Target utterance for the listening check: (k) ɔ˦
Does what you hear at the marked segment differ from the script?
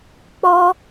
yes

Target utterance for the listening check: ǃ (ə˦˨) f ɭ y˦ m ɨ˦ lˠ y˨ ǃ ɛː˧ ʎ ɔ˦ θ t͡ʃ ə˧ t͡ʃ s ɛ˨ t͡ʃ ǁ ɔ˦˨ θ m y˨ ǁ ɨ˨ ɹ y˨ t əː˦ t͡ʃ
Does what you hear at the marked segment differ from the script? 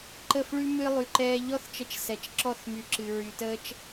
no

